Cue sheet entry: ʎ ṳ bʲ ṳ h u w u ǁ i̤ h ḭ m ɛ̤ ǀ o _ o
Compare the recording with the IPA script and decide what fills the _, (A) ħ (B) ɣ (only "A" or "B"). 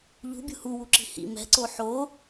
A